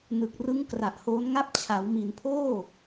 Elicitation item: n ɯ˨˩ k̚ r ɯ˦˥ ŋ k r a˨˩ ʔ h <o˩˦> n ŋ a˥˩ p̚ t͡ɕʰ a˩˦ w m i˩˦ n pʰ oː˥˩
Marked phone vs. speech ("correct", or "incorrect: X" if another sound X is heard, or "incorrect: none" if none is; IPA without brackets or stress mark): incorrect: o˦˥